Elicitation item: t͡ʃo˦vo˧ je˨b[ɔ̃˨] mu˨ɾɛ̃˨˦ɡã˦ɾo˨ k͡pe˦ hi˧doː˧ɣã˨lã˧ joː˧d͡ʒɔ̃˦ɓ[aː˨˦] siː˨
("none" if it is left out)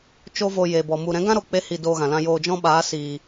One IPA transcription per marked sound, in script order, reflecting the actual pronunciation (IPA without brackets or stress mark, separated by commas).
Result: ɔ˨, aː˨˦